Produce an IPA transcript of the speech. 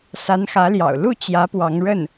sa˧˥nxä˧˥ljɑ̰˨˩ʊ̯ lu˥˩ t͡ɕjä˧˥ pwɑ˧˥ŋɻə˥˩n

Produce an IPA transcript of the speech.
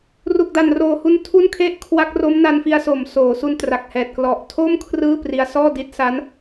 ru˨˩k̚da˨˩nroː˨˩hu˧n tʰu˥˩nkʰe˥˩ʔ kʰwa˦˥k̚ ro˦˥mna˧nfi˧a̯so˨˩m soː˩˦su˧n tra˨˩k̚hɛː˨˩t̚ klɔ˨˩ʔtʰo˥˩m kʰrɯː˥˩pri˧a̯ sɔː˥˩di˦˥t̚ sa˦˥n

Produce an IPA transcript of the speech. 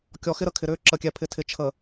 kʲɔ˨xɪ˦ ɾə˦kʰɪ˨ɾʏː˦ ǁə˨kʲɛ˨pʰɪ˨ tʰɪ˨t͡ʃʰə˨

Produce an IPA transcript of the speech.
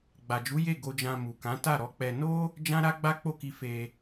ɡ͡ba˨d͡ʒu˨˦ je˦˨ ɡo˧d͡ʒã˧ mu˨ kã˨˦ta˦˨ɾɔ˨˦k͡pɛ˧ no˦ | d͡ʒã˦ɾa˦ ɡ͡ba˦k͡po˦˨ki˧ fe˧

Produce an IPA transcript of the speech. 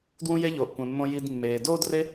dwũ˥je˥ʎoː˩ʔ kʷẽ˩mːõ˧ ji˧dmːeː˩ doː˥dre˥

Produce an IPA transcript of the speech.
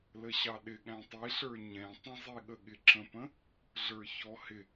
ləɕɑɗɪ ɠæ̃tˤiɬə˞ ɲɛ̃ tˤə̃zˤiɠə ɠɪǁə̃pə̃ | ɮə˞çɔhɪ

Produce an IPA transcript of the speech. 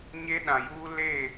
ɲe˦ɗã˨juː˦ le˦˨

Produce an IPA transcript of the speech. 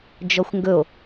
d͡ʒɔxʷŋɡɵo̯

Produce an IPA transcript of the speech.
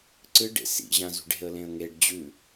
ǀɨ ɖḛsḭ ʑãzṳɖe̤ə̯ lẽə̯ŋeɖ d͡ʑʉ

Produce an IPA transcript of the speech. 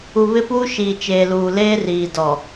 u˨ βɪ˦puː˦ ʃiː˨t͡ʃeː˨luː˨ leː˦riː˨ dɔ˨

